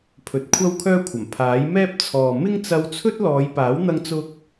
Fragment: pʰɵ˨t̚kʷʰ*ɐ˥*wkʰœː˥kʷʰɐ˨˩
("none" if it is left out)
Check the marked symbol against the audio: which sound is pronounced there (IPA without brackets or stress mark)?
ɐ˥